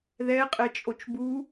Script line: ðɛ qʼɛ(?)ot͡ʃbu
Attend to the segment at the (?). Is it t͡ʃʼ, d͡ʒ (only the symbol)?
t͡ʃʼ